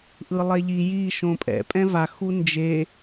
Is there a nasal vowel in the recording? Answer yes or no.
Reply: yes